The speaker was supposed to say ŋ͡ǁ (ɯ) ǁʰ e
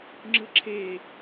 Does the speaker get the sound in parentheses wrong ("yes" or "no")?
no